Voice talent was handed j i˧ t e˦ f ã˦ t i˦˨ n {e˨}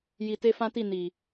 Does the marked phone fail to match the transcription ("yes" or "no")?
yes